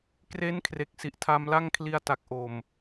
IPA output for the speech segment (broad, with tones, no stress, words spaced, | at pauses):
kre˦˥nkʰre˨˩k̚si˨˩ʔ tʰa˧mla˥˩ŋkʰli˧a̯ ta˨˩k̚ʔo˨˩m